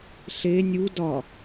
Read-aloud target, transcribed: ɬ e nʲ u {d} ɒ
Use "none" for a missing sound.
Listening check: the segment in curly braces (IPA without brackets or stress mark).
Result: d